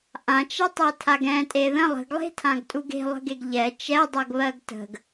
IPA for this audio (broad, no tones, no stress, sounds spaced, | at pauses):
ʔ ã t͡ʃ ɛ tˤ ɛ tʰ a ɡ ɛ̃ tʼ e ð ə̃ lˠ ə̤ ɡ lˠ e̤ tʰ ã ɡ tʼ u ɡ e̤ lˠ ə̤ ɡ e ɡ ʎ ɛ t͡ʃ ɛ dˤ ɜ ɡ β ɜ ɡ t ə̤ ɡ